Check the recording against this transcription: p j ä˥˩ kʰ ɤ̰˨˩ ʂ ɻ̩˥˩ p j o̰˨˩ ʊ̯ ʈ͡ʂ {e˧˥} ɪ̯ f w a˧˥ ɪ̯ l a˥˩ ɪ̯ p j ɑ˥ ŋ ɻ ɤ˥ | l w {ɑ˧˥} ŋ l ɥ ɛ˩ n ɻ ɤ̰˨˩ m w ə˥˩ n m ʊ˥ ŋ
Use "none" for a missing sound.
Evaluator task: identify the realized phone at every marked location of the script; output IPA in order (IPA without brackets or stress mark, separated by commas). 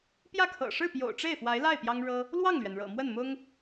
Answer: e˥˩, ɑ˥˩